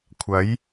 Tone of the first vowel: rising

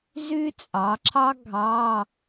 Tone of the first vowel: high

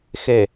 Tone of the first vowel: low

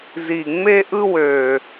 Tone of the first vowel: low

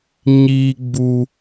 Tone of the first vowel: high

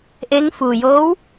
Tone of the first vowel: rising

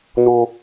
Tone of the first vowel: high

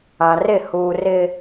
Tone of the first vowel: low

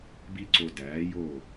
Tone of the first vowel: high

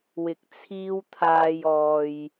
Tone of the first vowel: rising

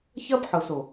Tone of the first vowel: high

